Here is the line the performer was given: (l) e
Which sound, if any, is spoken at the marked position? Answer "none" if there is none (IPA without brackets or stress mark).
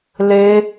l